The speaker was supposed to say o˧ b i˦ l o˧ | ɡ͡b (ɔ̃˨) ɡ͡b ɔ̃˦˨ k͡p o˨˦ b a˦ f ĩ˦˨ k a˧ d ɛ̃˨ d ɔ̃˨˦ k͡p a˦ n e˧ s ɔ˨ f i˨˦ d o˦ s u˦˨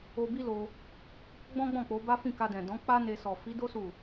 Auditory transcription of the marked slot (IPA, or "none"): ɔ̃˦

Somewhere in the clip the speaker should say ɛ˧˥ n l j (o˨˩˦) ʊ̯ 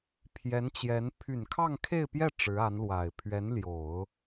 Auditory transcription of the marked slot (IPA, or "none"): o˨˩˦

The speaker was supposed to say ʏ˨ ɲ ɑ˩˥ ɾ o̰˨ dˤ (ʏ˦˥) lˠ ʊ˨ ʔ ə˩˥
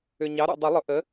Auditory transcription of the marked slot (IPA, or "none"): ʏ˨˩˦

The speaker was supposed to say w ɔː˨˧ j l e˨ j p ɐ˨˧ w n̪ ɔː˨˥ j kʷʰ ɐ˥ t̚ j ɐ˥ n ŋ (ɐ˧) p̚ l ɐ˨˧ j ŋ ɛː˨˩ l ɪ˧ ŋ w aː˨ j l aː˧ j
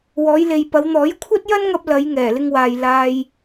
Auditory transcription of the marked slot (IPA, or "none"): ɐ˧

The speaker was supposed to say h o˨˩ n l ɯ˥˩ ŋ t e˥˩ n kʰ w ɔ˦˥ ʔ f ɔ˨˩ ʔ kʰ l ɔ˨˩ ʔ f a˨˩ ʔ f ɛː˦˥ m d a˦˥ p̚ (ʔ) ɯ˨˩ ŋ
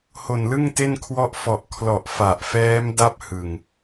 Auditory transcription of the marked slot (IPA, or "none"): h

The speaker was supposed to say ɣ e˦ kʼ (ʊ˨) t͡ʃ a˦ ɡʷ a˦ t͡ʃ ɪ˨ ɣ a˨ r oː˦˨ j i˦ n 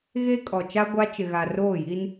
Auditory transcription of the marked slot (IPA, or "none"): ɔ˨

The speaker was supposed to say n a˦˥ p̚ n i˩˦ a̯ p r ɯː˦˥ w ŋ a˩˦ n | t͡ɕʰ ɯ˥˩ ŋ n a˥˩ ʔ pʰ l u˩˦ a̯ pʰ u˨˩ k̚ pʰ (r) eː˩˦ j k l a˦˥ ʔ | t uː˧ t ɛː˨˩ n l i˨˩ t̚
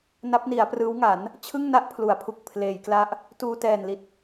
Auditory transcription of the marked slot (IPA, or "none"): l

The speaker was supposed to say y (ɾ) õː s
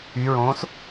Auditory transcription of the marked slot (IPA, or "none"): ɹ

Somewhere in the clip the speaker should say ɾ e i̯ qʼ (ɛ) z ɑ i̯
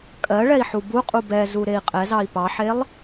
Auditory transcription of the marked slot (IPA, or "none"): ɛ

